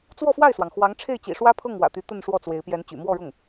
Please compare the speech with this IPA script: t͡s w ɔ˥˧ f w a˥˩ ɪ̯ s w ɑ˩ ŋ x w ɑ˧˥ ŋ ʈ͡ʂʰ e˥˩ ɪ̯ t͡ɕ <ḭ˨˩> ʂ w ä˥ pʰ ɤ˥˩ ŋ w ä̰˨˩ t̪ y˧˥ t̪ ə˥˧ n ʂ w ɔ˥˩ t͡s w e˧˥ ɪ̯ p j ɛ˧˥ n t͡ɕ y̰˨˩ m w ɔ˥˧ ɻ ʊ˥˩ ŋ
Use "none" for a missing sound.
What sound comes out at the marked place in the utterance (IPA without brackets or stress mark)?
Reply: ḭ˨˩